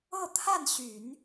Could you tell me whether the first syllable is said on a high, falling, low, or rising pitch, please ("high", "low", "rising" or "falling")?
falling